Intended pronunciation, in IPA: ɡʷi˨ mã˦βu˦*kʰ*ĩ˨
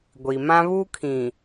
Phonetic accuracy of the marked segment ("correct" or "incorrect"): correct